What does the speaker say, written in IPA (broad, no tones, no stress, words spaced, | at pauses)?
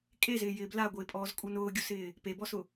kʼezɪːjɪː blaɡʷɪːpʼɔːzkʼu nʊːɡʲusɪː | pebɔsʊ